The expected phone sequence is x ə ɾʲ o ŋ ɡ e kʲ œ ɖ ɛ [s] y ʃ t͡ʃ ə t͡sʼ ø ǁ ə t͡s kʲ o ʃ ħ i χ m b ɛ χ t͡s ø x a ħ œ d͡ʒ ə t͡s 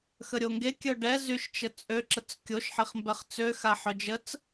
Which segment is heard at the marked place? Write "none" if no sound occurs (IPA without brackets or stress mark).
z